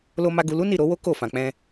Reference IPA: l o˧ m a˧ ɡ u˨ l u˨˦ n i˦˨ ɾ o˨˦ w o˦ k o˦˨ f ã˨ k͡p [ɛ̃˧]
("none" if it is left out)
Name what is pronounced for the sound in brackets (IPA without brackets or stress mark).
ɛ̃˧